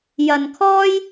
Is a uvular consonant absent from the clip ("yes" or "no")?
yes